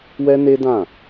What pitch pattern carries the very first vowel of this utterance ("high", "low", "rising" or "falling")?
high